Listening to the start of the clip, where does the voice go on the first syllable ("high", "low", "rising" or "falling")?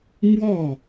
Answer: falling